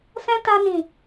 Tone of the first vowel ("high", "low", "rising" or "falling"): high